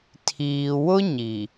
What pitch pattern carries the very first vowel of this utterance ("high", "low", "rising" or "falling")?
low